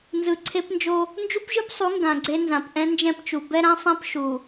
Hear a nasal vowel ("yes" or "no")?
yes